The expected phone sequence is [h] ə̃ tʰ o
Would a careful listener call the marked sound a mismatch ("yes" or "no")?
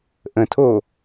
yes